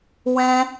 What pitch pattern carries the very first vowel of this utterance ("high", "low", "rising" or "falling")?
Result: high